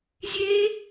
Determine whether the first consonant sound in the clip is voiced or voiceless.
voiced